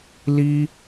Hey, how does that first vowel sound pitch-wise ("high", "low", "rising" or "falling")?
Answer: high